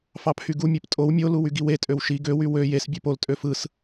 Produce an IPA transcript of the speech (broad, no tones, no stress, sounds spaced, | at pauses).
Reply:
f ɑ pʰ y ɡ u mʲ e p tʼ o w mʲ o l u w y ɡ i w e tʼ ø w ʃ i ɡ ø w y w ø j e s bʲ ø p o l tʼ ø f ɯ s